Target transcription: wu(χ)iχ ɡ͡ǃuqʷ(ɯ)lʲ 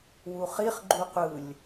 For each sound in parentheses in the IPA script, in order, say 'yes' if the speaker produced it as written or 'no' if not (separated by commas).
yes, yes